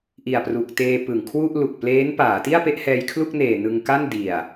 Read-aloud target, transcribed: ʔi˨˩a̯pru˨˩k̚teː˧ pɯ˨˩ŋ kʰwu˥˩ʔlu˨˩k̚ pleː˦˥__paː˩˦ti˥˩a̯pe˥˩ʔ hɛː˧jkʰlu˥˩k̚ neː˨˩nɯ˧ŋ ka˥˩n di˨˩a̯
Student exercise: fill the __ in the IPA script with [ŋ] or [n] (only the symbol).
n